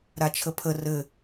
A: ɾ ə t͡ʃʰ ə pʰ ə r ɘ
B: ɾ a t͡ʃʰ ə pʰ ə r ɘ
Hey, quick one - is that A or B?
B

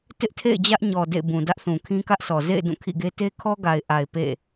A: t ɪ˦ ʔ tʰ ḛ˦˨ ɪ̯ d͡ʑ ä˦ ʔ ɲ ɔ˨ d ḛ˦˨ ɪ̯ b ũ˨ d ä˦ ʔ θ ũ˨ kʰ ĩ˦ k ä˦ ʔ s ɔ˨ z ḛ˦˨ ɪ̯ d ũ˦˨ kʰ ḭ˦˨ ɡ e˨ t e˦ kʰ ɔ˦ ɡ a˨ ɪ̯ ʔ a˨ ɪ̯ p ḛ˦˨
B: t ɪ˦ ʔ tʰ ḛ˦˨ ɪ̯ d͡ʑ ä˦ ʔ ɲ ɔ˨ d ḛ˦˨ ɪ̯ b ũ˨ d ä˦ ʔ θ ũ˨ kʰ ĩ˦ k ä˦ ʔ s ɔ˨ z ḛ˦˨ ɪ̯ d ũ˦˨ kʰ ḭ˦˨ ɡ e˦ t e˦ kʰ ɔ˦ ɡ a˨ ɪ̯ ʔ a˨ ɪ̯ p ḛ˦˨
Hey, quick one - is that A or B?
B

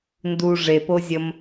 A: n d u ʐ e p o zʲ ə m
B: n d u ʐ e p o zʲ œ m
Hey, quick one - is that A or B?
A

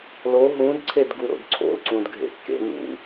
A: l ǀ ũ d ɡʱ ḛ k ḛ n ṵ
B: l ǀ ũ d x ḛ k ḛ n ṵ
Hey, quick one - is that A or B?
A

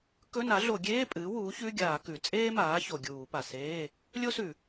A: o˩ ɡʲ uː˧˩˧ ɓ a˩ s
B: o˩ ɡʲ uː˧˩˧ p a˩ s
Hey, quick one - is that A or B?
B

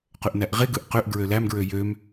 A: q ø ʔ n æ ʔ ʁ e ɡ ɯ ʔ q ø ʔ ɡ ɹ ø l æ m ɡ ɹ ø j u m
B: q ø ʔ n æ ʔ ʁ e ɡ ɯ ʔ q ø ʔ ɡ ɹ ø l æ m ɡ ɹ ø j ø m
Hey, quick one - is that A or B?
B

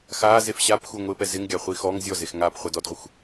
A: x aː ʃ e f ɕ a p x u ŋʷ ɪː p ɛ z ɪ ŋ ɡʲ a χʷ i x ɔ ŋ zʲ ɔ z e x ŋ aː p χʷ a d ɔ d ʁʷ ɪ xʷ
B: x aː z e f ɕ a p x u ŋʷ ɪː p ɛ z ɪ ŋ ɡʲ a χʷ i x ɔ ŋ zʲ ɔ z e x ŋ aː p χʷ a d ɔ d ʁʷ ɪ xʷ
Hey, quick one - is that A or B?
B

